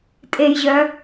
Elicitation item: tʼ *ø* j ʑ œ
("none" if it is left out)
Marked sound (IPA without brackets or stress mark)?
e